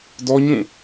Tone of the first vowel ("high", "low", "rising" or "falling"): high